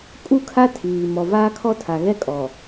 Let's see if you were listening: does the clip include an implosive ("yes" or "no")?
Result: no